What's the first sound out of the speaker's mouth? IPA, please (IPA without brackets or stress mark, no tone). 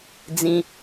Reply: d͡z